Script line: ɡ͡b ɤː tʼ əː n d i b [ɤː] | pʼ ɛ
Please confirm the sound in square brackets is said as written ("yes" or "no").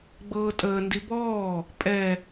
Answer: no